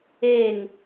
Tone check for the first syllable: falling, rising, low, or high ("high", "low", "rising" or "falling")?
falling